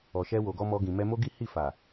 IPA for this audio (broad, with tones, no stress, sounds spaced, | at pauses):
ɔ˨ ʃ ɛ˧ w o˨ ɡ ɔ˧ m ɔ˧ ɡ ĩ˨ m ɛ˧ m o˦ ɡ i˦ h i˦˨ f a˨